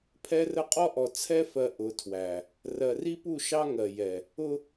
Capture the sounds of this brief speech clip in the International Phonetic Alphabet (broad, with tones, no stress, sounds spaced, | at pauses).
pʰ ɛ˦ r ə˦ qʼ ɔ˦ ʔ ɔ˨ t͡sʰ ɛ˦ f ɜ˨ ʔ ʊ˨˦ tʰ w æ˨ | r ɜ˨ r i˦ p u˦˨ ʃ ɑ˦ ŋ ɜ˨ j ɛ˨ | ʊ˦